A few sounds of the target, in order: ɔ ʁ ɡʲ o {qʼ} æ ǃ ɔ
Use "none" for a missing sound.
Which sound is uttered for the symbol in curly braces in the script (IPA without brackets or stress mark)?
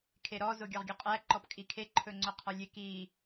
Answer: qʼ